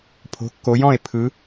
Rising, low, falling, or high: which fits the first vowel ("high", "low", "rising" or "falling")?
rising